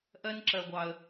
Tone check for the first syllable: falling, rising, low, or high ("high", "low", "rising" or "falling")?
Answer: high